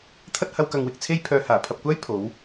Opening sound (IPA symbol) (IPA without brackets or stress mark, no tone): t̪ʰ